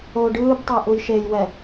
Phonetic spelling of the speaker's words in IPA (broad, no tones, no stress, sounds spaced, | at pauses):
o ɖ ɯː b tˤ ɤ ʔ u j ʃ e j w ɛ